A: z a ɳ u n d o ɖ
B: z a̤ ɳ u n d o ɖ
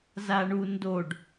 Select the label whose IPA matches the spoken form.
A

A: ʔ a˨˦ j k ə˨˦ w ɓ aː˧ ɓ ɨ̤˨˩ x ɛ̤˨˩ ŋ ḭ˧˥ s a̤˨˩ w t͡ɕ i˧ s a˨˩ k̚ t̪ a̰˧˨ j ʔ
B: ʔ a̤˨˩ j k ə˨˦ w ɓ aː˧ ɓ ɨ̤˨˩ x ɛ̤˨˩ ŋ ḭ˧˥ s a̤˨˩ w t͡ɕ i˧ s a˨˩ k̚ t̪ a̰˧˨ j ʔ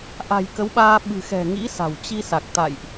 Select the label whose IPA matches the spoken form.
B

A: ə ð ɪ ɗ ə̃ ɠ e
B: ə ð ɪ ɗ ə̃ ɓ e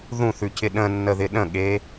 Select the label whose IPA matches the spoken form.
A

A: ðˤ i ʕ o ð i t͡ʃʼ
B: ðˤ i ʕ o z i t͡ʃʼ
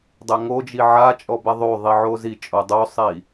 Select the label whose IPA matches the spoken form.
B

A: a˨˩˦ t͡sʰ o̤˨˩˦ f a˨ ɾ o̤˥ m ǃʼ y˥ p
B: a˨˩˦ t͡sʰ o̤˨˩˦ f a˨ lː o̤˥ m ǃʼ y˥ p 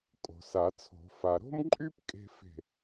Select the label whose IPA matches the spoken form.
A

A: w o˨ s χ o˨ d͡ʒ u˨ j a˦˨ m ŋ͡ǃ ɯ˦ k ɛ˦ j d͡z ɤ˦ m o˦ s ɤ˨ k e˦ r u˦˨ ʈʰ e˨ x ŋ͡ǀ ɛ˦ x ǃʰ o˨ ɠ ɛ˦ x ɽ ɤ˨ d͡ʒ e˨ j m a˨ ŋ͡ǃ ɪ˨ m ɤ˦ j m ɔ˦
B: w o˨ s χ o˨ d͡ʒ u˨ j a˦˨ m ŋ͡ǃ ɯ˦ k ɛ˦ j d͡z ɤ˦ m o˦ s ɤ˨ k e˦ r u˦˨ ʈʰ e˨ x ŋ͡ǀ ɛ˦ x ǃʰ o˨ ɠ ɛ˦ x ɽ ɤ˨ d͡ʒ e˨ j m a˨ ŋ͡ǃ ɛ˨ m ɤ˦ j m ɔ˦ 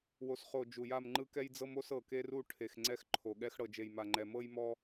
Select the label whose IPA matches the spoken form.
B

